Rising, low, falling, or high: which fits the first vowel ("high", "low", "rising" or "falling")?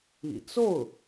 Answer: low